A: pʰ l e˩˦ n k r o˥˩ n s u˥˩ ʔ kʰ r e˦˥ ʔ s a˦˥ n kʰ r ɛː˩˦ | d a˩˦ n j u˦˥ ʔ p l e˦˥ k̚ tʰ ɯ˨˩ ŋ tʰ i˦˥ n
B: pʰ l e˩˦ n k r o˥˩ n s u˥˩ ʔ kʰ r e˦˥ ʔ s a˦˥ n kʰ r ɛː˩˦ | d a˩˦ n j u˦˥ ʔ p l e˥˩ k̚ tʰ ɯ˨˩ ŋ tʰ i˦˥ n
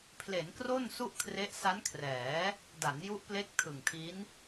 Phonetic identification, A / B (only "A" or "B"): A